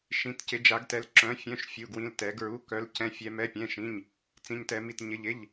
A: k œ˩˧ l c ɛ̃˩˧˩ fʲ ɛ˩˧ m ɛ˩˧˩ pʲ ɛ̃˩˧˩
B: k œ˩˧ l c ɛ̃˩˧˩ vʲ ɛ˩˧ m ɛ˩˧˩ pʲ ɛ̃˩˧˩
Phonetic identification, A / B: A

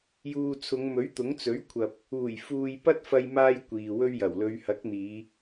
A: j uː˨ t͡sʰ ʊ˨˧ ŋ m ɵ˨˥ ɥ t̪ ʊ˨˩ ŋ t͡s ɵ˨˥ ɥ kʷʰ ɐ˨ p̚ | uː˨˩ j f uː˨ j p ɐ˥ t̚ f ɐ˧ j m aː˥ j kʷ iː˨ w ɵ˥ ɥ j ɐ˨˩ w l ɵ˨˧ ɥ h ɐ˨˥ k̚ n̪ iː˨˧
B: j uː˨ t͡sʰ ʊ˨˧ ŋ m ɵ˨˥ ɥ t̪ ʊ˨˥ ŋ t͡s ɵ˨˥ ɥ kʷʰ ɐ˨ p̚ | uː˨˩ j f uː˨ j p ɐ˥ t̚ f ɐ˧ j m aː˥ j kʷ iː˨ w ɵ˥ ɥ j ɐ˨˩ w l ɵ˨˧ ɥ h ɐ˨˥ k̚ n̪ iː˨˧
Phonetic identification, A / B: B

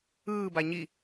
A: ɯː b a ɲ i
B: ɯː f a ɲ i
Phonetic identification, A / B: A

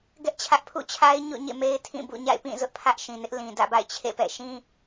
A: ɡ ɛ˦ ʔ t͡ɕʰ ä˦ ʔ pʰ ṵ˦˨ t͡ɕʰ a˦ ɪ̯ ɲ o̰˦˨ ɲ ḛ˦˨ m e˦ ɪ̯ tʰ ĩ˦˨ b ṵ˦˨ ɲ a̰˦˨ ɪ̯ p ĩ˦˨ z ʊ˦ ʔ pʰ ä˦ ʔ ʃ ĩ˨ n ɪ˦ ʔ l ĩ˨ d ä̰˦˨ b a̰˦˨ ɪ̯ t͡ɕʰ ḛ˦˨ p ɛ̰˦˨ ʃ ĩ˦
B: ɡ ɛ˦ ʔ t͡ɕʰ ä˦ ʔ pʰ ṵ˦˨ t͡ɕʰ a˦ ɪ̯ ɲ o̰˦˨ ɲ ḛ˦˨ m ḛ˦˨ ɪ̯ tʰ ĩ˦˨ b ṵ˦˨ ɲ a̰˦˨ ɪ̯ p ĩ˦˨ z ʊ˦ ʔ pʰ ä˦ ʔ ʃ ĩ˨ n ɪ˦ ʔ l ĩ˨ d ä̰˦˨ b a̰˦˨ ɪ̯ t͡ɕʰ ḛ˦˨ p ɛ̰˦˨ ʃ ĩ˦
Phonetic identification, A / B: A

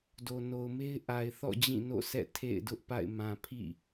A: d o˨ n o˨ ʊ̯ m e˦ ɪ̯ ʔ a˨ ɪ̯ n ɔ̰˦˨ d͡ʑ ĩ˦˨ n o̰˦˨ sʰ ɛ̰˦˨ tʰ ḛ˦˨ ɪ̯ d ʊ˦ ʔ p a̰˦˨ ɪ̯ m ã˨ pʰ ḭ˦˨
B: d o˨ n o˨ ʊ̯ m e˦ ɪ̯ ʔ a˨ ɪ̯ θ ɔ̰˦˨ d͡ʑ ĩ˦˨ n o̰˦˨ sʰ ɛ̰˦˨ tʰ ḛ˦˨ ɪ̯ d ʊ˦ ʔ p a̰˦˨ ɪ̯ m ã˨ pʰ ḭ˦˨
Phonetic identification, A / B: B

